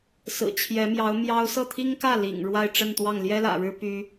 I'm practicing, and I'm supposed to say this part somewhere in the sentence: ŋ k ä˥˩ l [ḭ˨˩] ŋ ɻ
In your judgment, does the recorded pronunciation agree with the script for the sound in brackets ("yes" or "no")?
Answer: yes